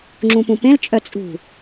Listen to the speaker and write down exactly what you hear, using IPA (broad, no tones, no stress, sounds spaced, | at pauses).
ŋ͡ǁ ũ p ũ p ẽ l t͡ʃʼ œ t͡sʼ ṳ